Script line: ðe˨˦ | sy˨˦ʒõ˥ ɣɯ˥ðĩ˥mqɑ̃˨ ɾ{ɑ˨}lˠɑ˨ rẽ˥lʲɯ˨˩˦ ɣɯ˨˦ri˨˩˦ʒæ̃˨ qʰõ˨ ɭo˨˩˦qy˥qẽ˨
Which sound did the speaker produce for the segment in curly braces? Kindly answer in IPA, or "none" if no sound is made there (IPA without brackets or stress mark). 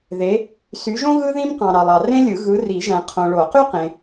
ɑ˨